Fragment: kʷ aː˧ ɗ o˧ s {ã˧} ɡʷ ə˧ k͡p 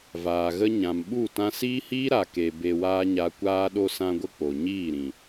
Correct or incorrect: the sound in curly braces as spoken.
correct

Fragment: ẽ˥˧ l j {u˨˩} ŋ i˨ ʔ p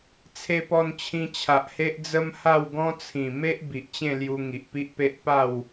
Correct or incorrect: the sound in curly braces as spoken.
incorrect: u˧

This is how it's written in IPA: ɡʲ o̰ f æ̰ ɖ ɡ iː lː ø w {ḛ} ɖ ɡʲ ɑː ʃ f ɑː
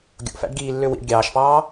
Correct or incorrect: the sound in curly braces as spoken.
incorrect: ḭ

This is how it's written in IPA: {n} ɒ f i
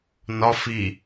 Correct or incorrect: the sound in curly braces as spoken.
correct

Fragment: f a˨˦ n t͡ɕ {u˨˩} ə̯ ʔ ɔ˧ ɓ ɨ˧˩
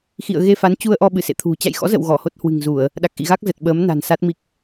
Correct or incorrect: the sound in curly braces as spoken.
incorrect: u˧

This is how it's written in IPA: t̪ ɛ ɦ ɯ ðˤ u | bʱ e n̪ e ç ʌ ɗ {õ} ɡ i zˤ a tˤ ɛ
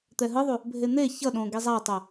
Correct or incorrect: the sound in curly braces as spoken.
correct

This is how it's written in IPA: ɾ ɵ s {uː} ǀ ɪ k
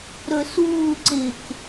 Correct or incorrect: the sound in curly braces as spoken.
correct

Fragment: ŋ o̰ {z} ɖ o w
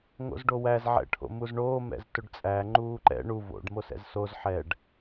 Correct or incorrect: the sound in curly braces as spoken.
correct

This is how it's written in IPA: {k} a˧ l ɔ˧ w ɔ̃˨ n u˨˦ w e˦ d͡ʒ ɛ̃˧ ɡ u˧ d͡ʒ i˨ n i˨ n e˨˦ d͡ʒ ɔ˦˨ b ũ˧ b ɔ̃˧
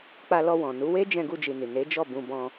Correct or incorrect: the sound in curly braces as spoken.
incorrect: k͡p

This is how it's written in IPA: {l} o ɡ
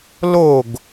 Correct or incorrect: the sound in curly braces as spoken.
correct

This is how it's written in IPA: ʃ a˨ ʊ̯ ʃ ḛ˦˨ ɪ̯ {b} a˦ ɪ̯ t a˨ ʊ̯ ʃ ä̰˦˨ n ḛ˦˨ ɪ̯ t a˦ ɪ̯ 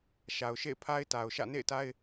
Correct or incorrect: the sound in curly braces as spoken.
incorrect: pʰ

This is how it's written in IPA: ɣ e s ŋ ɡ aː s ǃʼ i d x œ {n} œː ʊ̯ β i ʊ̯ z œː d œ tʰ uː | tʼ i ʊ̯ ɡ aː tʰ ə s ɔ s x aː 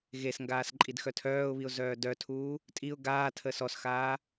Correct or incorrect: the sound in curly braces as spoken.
incorrect: tʰ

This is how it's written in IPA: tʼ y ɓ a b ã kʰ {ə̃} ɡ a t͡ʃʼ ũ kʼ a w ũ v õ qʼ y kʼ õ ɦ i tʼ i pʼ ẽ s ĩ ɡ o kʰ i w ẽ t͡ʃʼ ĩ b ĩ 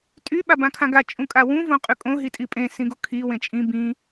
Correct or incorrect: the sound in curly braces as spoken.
incorrect: ã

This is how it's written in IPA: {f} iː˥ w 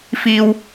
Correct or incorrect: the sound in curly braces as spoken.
correct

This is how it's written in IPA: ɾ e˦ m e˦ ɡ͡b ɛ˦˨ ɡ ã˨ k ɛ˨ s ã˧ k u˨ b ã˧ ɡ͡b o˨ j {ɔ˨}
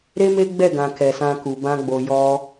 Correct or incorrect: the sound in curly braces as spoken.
incorrect: ɔ˧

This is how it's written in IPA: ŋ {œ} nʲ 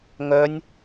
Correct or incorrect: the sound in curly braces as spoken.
correct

